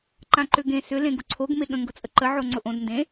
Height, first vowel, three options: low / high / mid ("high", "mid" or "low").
low